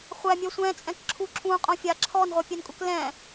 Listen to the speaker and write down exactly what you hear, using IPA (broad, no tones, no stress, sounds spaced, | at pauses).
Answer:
χʷ æ mʲ œ sʷ ɛ̃ t͡sʼ ɛ̃ k ǁʰ u ǁʰ ũ qʼ õ fʲ aː ǁʰ ɔ n ʁʷ æ pʲ ɛ n kʼ u k l ɛ̃ː